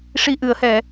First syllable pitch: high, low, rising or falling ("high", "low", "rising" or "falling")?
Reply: low